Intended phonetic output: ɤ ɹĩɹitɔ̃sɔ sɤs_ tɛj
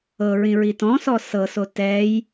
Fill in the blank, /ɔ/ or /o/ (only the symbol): o